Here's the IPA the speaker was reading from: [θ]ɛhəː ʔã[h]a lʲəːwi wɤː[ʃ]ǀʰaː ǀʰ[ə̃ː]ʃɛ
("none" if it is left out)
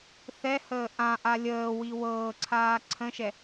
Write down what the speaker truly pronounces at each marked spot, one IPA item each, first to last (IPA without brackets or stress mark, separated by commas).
θ, ʔ, none, ə̃